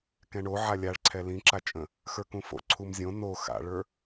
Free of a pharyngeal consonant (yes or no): no